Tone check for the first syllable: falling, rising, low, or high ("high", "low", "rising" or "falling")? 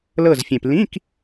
falling